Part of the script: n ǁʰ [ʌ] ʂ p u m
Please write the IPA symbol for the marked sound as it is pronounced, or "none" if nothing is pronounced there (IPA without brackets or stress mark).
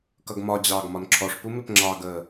ɔ